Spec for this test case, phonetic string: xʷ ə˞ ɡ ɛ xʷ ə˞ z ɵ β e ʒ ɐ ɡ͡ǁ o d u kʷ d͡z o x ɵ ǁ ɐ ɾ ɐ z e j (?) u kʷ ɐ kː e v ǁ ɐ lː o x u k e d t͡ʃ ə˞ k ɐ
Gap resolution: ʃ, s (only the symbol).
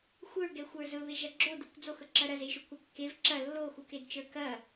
ʃ